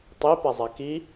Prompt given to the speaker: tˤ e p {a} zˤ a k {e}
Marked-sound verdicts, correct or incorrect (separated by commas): correct, incorrect